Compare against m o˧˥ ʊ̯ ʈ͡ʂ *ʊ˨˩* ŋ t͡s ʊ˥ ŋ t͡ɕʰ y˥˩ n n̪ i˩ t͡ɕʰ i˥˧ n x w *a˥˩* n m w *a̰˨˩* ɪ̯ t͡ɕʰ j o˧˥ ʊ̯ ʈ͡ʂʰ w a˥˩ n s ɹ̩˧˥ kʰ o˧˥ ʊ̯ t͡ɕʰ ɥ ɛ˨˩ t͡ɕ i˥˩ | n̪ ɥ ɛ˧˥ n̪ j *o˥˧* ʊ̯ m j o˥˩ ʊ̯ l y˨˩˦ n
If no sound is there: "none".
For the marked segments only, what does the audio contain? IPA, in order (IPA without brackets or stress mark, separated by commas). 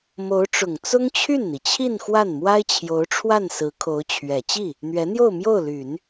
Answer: ʊ˨˩, a˥˩, a˥, o˥˧